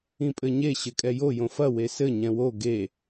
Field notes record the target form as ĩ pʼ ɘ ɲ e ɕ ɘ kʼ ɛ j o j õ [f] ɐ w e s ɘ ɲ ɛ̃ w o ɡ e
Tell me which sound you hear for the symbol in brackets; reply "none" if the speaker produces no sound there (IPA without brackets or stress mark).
f